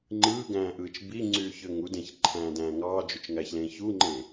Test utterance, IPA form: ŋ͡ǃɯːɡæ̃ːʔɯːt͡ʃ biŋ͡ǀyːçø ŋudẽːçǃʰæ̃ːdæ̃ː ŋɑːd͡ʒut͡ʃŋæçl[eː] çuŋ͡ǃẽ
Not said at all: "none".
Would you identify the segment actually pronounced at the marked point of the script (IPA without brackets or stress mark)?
ẽː